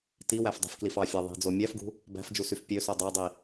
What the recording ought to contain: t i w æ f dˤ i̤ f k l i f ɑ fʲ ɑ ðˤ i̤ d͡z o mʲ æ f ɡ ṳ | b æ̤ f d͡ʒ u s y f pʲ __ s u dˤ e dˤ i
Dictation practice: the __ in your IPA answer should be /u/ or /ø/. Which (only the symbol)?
ø